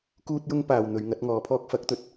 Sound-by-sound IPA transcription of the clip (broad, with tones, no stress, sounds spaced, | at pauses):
k uː˥ t̚ j ʊ˥ ŋ p aː˨ w n̪ ɵ˨˧ ɥ ŋ ɐ˨˥ t̚ ŋ ɔː˨˧ pʰ ɔː˥ k̚ f ɐ˨˥ k̚ t̪ ɵ˨˥ t̚